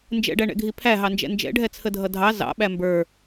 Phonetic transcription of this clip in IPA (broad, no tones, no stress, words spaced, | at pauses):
nd͡ʒɛ̰ɖæɳɛ̰ɡʱi pʰæɦɑnd͡ʒɛ̰ nd͡ʒɛ̰ɖʱɛt͡sʰədʱʌ dʱɑ zɑ̰ɓæ mbə˞